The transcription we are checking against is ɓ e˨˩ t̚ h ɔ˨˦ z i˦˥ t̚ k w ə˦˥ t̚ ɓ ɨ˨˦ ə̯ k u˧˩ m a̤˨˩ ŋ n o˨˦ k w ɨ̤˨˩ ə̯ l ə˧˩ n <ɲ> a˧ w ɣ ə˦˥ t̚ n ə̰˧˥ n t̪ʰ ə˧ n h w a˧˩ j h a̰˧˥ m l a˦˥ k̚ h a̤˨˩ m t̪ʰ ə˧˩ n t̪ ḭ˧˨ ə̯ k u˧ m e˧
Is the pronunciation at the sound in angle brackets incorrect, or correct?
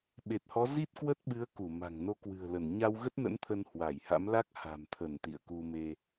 correct